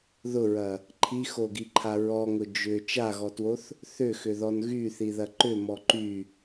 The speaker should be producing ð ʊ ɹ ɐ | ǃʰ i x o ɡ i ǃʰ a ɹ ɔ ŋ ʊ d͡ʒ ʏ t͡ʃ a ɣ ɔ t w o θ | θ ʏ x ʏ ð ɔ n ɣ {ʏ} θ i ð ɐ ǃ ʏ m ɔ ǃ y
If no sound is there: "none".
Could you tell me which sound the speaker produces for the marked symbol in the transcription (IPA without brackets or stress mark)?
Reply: y